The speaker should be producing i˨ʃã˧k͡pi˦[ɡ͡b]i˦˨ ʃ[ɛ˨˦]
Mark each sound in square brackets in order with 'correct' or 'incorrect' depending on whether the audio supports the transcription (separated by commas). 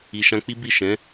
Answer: incorrect, incorrect